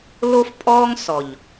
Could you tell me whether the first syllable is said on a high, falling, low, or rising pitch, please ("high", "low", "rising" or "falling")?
high